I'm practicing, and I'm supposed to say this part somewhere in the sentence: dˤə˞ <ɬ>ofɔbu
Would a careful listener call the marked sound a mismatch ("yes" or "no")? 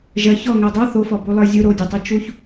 yes